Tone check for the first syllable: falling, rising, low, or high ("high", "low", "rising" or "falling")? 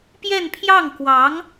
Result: falling